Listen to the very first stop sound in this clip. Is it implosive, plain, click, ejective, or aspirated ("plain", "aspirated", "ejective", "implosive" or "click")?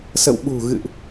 implosive